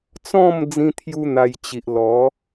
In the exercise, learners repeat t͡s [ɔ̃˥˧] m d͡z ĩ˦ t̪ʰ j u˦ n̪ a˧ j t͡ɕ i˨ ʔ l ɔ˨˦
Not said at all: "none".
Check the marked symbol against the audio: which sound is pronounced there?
ɔ̃˥˧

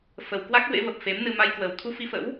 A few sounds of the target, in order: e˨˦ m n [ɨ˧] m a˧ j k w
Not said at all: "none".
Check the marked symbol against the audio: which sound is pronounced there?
ɨ˧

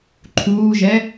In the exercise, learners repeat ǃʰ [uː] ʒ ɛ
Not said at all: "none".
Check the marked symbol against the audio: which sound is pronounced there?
uː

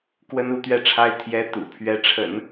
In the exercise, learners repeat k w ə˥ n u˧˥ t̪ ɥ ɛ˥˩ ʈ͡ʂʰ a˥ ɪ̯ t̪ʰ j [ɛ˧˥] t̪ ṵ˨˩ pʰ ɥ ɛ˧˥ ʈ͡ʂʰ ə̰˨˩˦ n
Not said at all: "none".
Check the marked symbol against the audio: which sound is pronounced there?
ɛ˧˥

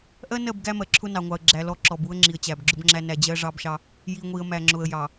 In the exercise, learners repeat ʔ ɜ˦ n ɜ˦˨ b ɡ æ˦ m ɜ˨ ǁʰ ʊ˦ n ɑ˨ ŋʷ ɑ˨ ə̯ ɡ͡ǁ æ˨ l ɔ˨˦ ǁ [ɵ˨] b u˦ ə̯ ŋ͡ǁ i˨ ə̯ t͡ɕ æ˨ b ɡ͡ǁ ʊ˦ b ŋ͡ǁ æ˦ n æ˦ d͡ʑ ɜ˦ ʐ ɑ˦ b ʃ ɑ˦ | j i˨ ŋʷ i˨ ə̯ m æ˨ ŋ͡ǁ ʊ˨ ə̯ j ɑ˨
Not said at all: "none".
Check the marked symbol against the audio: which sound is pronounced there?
ɔ˨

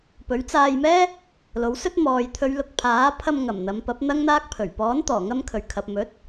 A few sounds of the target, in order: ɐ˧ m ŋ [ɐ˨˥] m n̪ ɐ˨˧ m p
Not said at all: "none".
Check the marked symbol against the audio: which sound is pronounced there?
ɐ˨˩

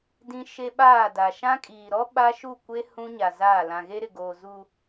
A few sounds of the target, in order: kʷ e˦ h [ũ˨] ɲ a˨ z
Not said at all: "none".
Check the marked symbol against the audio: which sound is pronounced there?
ũ˦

